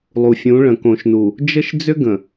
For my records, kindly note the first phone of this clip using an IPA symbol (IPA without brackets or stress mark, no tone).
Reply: lˠ